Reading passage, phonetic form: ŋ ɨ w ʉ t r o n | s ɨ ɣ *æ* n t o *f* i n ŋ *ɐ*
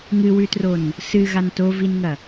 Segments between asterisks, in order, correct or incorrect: incorrect: a, incorrect: v, correct

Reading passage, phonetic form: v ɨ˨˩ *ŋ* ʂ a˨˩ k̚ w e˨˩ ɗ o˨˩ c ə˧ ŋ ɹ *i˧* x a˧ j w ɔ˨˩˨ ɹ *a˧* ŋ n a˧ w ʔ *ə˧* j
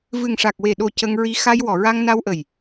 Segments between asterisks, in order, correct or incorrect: correct, correct, correct, incorrect: ə˨˩

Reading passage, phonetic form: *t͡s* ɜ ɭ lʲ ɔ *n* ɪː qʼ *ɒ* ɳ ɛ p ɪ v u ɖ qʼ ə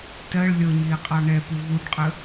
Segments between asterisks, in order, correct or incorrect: incorrect: t, incorrect: ɲ, incorrect: ɑ

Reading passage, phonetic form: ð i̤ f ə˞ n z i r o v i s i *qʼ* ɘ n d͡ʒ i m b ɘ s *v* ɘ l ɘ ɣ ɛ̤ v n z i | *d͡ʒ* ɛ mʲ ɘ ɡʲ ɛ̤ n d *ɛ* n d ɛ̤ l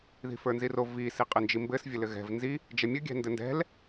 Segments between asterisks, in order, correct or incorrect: correct, incorrect: vʲ, correct, incorrect: ɘ

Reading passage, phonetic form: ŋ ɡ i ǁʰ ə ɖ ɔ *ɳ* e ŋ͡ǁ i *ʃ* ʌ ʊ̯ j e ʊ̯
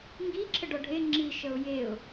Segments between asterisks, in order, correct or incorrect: incorrect: ɖʱ, correct

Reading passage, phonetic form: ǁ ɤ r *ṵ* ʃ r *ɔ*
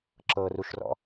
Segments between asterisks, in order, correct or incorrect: incorrect: u, incorrect: ɔ̰

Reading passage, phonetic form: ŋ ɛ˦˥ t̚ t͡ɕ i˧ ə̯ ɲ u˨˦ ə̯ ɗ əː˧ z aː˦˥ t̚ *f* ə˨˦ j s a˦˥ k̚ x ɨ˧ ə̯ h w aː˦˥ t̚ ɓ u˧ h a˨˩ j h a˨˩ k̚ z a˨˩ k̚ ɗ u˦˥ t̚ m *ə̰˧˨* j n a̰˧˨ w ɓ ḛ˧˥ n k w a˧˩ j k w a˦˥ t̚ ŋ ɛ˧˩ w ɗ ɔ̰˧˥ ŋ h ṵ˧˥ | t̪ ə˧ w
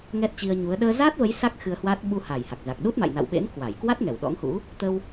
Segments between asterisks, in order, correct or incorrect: incorrect: v, incorrect: a̰˧˨

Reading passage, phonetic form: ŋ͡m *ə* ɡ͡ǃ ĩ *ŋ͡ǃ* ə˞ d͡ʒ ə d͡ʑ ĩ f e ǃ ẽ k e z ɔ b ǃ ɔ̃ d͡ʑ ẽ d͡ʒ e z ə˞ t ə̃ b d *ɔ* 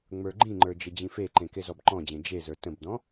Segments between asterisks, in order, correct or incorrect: incorrect: ə˞, correct, incorrect: ɔ̃

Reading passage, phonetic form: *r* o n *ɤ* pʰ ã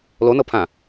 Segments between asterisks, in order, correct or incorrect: incorrect: l, correct

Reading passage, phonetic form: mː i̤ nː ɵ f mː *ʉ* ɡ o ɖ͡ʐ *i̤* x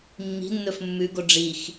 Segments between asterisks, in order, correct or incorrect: correct, incorrect: i

